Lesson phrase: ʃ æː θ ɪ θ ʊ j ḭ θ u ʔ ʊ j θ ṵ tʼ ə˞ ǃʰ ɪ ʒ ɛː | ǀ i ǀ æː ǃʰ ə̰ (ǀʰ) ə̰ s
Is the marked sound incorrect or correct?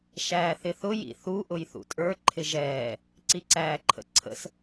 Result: correct